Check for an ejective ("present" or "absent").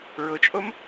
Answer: present